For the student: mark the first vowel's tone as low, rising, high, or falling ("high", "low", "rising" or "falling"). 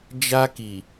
high